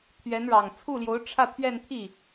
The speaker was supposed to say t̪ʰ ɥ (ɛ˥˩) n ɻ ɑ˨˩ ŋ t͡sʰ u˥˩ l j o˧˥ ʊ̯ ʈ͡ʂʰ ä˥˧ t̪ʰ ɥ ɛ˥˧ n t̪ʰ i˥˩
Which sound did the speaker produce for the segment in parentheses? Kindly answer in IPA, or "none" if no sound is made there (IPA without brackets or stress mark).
ɛ˧˥